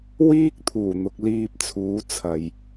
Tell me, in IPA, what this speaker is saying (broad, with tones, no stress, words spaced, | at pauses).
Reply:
wiː˥k̚ t̪ʰuː˨˩n̪ʊ˧k̚ liː˧p̚t͡sʰuː˨˥ t͡sʰɐ˨j